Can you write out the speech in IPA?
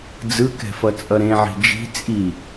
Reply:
d͡zɯkɛ̤fʌt͡sʼʌ ɾẽʕi̤ d͡ʒi̤ t͡sʼi

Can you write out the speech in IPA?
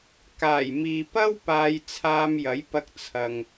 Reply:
kaː˨˩jmiː˨pɐ˥w paː˧jt͡sʰaː˧mjɐ˨˥jpɐ˧k̚ t͡sʰɐ˨ŋ

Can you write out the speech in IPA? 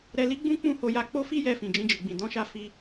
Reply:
ɾɛ˧li˦ɡ͡bũ˦ k͡pũ˦˨ho˧ja˧ k͡po˦fi˦jɛ˧ fĩ˨d͡ʒĩ˧d͡ʒi˨ɡ͡bĩ˨ dɔ̃˨˦ʃa˧ fi˧

